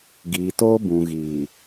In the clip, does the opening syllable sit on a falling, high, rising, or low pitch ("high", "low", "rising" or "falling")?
low